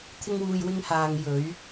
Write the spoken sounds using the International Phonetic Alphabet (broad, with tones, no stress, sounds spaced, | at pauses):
t̪ʰ ɪ˥ ŋ w uː˧ j w ɪ˥ ŋ h aː˧ ŋ j ɵ˨˥ ɥ